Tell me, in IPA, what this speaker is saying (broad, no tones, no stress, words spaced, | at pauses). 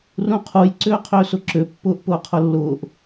rũqʰuj ǀʏːqʰʏːsʊǁʏ pːʊːʔpʊːqʰʊlːʊːʔ